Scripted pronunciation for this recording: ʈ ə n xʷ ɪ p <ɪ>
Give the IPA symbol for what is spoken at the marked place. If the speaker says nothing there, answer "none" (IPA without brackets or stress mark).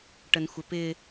ɪ